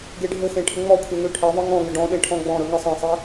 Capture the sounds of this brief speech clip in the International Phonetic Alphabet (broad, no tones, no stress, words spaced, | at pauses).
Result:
ɡeɖʱɘxẽ ʈʰɘŋ͡mɔkʷʰe ŋøʈʰeðˤɨ ŋɔ̃ŋɘ ɖɔ̃ɗẽ ʈʰɔ̃ɡ͡bɔ̃ɾɵ ŋɨsˤẽsˤe